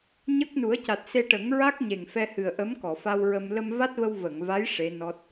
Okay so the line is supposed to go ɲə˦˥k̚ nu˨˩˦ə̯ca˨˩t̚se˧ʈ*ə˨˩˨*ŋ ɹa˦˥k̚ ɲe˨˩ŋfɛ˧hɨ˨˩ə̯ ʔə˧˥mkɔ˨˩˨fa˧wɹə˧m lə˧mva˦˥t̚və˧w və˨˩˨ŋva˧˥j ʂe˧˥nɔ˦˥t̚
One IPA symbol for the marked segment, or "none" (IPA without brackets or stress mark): ə˨˩˦